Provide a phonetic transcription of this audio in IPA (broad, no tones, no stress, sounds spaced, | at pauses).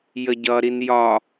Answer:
j ə ɟ ʌ ɾ i n j ɒ